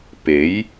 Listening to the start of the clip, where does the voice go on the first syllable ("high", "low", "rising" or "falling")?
rising